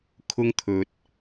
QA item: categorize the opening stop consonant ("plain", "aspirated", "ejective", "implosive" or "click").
aspirated